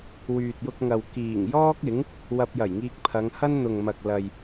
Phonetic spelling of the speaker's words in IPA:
wyː˨t̚jʊ˧k̚ŋɐ˨w kiː˨˩ŋjɔː˥k̚ ɪ˨˥ŋ | wɐ˧p̚jɐ˨˩jŋiː˧k̚ pʰɐ˨˧ŋhɐ˥n n̪ʊ˨ŋmɐ˨k̚ lɐ˨j

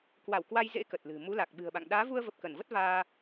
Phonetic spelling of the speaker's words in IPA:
kwa˧˩wkwa˧jzḛ˧˥ kə˨˩t̚lɨ̤˨˩ mu˨˦la˨˩k̚ɓɨ̤˨˩ə̯ɓa̰˧˨ŋ ɗaː˨˦vu˧ə̯və˨˩p̚ kə˧˩nvə˦˥t̚ vaː˧

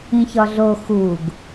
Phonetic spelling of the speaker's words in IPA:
ĩçɒɮo xuɡ

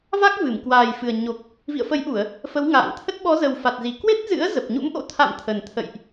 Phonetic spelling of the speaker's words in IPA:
va˦˥k̚ vɨ˧˩mkwaː˨˩jfɨ˨˩ə̯ɲo˨˩k̚ | vḭ˧˨ə̯fə˨˦jʔu˧˩˨ə̯ | fə˨˦wŋa̰ː˧˨ŋt̪ʰə˦˥t̚ ɓɔ˨˦zə˨˩w fa˨˩t̚zi˨˩ kwe˦˥t̚zɨ̰˧˥ə̯ zə˨˩p̚ɲṵ˧˥mʔo̰˧˥ t̪ʰa̰˧˨m t̪ʰə˨˩nt̪ʰə̰˧˨jʔ

